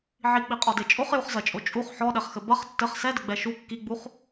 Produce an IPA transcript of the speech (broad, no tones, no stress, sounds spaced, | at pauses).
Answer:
ʕ i k͡p i qʼ ɔ d e t͡ʃʼ o χ j u χ z ɐ t͡ʃʼ o t͡ʃʼ u χ ħ ɔ ɗ ɛ χ x ɘ b ɐ χ tː ɘ χ s ɛ d ɘ ɡ͡b ɛ ʃ u kː i ɡ͡b u χ